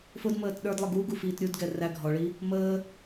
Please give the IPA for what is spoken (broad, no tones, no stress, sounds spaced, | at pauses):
f ʊ d m əː t ɗ ə˞ d lˠ ə ɡ u ɡ u f iː t ɾʲ u d ɡ ɛ r æ ɡʱ ɔ ɭ i | m əː